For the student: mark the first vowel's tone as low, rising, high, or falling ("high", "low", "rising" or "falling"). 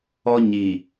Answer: high